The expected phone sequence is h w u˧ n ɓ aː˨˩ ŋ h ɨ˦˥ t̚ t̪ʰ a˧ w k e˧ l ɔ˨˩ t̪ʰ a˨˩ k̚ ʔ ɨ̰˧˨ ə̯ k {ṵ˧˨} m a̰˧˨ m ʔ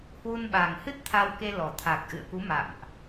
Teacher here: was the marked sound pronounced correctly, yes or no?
no